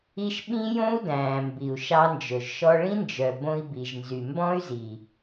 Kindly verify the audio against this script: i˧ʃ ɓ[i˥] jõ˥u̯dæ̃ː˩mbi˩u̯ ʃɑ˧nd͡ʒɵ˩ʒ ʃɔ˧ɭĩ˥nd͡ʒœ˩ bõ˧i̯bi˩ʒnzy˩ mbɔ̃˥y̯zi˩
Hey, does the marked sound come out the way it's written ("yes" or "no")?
no